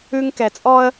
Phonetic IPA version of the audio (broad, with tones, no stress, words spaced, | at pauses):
ʉ˦ŋkɛ˨t͡sʼɔ˦ə̯